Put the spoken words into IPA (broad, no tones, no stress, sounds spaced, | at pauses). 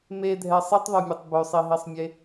m e dʱ ɛ sˤ i tˤ ðˤ ø mʲ ø tˤ b ø sˤ i ɦ i sˤ mʲ e